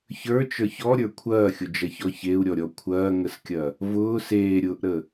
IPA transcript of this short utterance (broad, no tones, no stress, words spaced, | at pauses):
çə˞t͡ʃə˞ç ɔɾʲə˞ kʷʰɐːxʲʊd͡ʒɐçɔ çeu̯ɾʲɔɾʲɔ kʷʰɐːŋəskʲɐ | vʊː seːɾʲʊːʔɾə